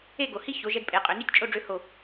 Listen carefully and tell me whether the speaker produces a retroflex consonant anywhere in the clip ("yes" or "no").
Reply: yes